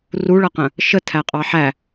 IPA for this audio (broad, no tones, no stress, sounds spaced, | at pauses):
r u ɭ ʌ q ə̃ | ʃ ə tʰ æ qʼ ɑ ħ æ